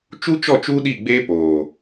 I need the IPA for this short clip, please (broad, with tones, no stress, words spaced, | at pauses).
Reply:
t͡ʃu˦t͡ʃɔ˦˨t͡ʃu˦ ɗi˦˨ɡ͡beː˦poː˨